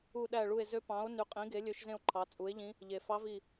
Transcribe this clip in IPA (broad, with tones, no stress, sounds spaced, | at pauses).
u˧˩ ɗ æ˧˩ ɭ u˧˩ e̯ z ø˧˥ p ɑ̃˩˥ o̯ n y˩˥ qʼ ĩ˩˥ ɡ e˩˥ lʲ ø˧˥ ʃ z ẽ˥˨ o̯ ǃʰ ɑ˩˥ t͡sʼ u˩˥ e̯ ʎ ĩ˧˥ | ʎ e˩ f ɑ˧˥ v i˧˩